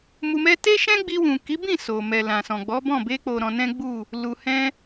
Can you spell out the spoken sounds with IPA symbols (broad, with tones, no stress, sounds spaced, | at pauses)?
m u˧ m ɛ˦ t e˦ ʃ ɛ̃˦ ɡ͡b i˧ w ũ˨ k i˨˦ b ĩ˦˨ s o˨ m ɛ˨ l ã˨ s ɔ̃˨ ɡ͡b ɔ˨˦ b ɔ̃˦˨ b e˧ k͡p o˨ ɾ ɔ̃˧ n ɛ̃˦ ɡ͡b u˦˨ | l u˨ h ɛ̃˧